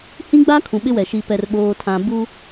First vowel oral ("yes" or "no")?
no